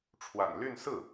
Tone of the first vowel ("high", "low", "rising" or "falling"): low